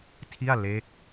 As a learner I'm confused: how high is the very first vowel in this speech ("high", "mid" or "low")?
high